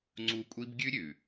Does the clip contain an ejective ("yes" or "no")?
yes